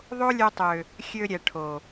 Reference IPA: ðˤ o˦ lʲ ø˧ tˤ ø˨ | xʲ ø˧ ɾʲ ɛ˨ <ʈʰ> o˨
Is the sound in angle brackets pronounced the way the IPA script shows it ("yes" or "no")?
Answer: yes